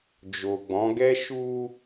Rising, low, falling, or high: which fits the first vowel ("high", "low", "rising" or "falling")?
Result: low